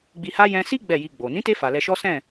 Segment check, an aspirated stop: absent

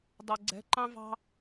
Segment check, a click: present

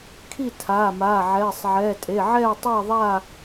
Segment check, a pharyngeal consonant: present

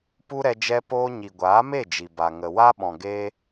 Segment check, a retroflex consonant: absent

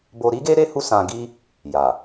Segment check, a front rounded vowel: absent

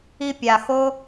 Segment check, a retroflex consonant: absent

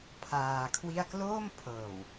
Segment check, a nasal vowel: absent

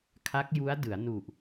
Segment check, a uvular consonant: absent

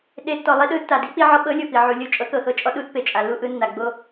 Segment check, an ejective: present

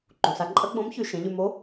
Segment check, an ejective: present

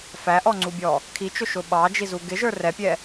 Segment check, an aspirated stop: present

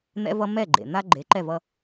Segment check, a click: present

